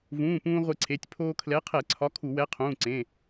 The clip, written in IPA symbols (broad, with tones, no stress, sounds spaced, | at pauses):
v ũː˩˧˩ p ũː˧ ʁʷ e˧ ǀʰ e˩˧˩ tʲ pʰ oː˧ kʰ l ɛ˨˥ qʰ ɛ˧˩˧ ǀʰ ɒ˨˥ kʰ u˧˩˧ w ɛ˨˥ qʰ ũː˩˧˩ ǀ ẽ˩˧˩